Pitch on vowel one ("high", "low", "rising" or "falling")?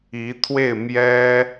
rising